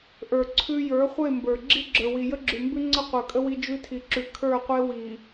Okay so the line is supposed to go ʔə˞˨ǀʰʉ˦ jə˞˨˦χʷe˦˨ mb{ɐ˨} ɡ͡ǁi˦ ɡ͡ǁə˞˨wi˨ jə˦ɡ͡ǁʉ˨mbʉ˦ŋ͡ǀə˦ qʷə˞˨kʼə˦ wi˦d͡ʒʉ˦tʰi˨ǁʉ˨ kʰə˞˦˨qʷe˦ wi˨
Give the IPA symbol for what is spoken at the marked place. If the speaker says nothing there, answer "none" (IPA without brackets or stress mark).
ə˞˨